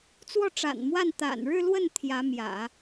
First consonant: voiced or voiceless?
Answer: voiceless